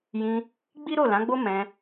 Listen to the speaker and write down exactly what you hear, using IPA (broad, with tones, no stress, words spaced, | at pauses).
jĩ˧ | ɡ͡bi˦ɾo˦˨lã˨˦ɡ͡bo˦ mɛ̃˧